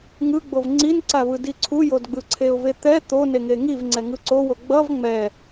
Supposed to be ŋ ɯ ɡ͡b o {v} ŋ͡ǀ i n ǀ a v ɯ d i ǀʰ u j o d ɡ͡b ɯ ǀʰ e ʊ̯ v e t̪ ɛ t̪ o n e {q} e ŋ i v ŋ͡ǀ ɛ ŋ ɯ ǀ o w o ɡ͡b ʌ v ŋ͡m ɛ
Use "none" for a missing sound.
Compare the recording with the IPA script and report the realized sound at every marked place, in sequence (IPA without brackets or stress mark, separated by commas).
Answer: v, ŋ